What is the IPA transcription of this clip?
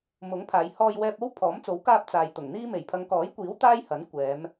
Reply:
m ʊ˨˥ ŋ pʰ aː˨˧ j h ɔː˧ j w ɛː˧ p̚ o˥ w pʰ ɔː˨˥ m t͡s o˨˥ w k aː˧ p̚ t͡s aː˨ j t̪ ʊ˨˩ ŋ n̪ iː˥ m e˨˩ j pʰ ɐ˨˧ ŋ k ɔː˨˥ j kʷ iː˨˥ w t̪ aː˥ j h ɐ˨˥ n kʷ ɛː˨˧ m

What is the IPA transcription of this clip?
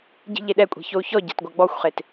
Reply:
ɟ i̤ ʎ e ɗ ɛ kʷʼ e̤ ç o u̯ ç ɔ ɟ a̤ t ɡʷ a ɡ͡b ɔ xʷ χ e t

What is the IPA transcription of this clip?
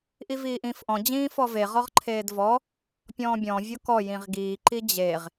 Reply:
ʔ i v iː ʔ ĩː f ʔ ɔ̃ d͡ʑ ĩː f ɔ v e ʁ ɔ ʁ ǃʰ eː d v ɔ | pʲ ɔ̃ː bʲ ɔ̃ vʲ o k ɔ j ĩ ʁ ɡ iː ǃ i d͡ʑ e ʁ

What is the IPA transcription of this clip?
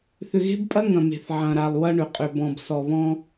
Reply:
θ ʏ˨ ɣ e̤˦ b pʼ ɐ˦ ŋ ɐ̃˨ m e̤˨ θ ʕ ɐ̃˨ ɾ a˨ lˠ w ɐ˦ ɳ ʏ˨ qʼ ʏ˨ b ɔ̃˨ b s ɔ˨ β ɔ̃˦

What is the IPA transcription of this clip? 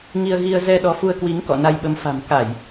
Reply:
ŋ i˧ ə̯ ɣ i˧ ə̯ z ɛ˧ ɗ ɔ˨˦ f u˧ ə̯ k w i˨˦ ŋ k ɔ̰˧˨ n a˧ j ɓ ə˨˦ m f a̤˨˩ m k a˧˩˨ j

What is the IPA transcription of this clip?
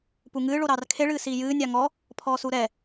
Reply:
p u ŋ ɨː ɭ o ɾ ɑː r kʰ e ɭ ɨː s iː j ɨː nʲ ɑ ŋ ɔ | pʰ ɔː s u ɾ ɛ

